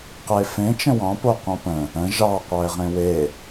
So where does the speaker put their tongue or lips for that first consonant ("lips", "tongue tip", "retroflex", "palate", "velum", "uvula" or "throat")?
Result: uvula